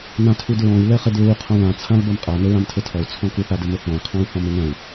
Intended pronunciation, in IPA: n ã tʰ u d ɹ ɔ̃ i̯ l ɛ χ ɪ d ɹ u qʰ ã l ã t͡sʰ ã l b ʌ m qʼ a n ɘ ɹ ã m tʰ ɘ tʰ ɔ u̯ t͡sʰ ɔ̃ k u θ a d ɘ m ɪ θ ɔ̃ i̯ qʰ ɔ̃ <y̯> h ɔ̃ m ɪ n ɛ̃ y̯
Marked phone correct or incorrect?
correct